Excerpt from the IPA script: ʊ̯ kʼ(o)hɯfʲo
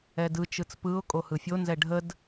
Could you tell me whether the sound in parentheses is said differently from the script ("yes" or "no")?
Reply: no